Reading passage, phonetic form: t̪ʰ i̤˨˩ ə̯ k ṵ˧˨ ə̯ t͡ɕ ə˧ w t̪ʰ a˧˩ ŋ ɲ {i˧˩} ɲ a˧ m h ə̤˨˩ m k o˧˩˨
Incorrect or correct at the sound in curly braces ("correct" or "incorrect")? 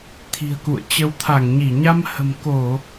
correct